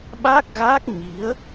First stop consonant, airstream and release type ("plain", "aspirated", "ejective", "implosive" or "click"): implosive